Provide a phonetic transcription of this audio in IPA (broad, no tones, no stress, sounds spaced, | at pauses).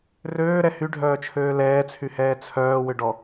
r øː ɾ ɛ h y ɖʱ œː t͡ʃʰ øː l ɛː t͡sʰ y h ɛː t͡sʰ œː w ʏ ɖ ɔ